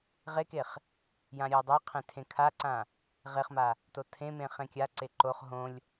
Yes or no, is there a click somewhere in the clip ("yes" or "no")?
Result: yes